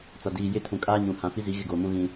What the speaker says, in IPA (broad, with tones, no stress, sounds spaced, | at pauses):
t͡s a˨ d iː˨ j ɪ˦˨ tʰ ũ˨ kʼ aː˦ ɲ ũ˨ h ã˨ f i˦ z i˨˦ ɣ ɪ˦˨ ɡ oː˨ m ũ˦ ɣ ĩ˦